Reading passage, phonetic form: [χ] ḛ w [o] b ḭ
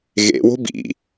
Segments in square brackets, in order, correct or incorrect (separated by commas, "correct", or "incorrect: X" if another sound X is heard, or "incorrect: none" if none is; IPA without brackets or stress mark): incorrect: ɣ, incorrect: o̤